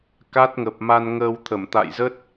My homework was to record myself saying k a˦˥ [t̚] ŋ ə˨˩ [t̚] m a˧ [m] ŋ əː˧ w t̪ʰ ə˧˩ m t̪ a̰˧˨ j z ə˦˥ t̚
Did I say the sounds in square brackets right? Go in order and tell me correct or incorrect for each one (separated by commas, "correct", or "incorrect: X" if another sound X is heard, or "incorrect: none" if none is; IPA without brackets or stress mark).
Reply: correct, incorrect: p̚, incorrect: n